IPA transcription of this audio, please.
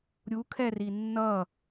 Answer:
ɾʲukʰɛri nːʌ

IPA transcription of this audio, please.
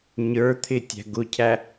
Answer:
ɲə˞t̪ʰɪ tʲæ̤ɡʊcʰæ

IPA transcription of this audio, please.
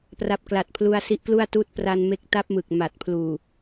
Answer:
pra˨˩p̚kla˨˩t̚ pʰlu˧a̯si˦˥ʔklu˥˩a̯tuː˥˩t̚ pra˧nme˦˥k̚ ta˦˥p̚mɯ˨˩k̚ ma˨˩t̚pʰluː˨˩

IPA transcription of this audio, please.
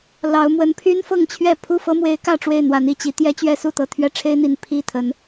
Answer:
lɑ˨˦ʊ̯mwə˨˦n pʰy˦nfɤ˥˨ŋt͡ɕʰɥɛ˥˨ pʰu˥˨fɤ˦mwe˨˦ɪ̯ kä˥˨ʈ͡ʂwe˥˨ɪ̯n̪wa˨˦n i˨˩t͡ɕi˨˦ t̪jɛ˦t͡ɕɥɛ˦su˥˨t̪ɤ˨˩ t̪ʰɥɛ˦ʈ͡ʂʰe˦ɪ̯n̪i˨˩n pʰi˥˨ t̪ʰə˨˦n

